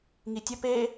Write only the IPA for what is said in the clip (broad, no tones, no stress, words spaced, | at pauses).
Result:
ŋitʲə pe